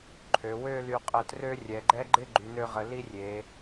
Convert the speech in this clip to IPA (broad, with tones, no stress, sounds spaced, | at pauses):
ǃʰ ø˩˧ w ø˥˧ l y˧ qʼ ə˧ t r ø˥ rʲ ɛ˩˧ ɡ͡ǃ ɛ˥ ɡ͡ǃ ɪ˥˧ ɡ͡ǃ y˩˧ n ø˧ ʁ ə˩˧ l i˥ rʲ e˩˧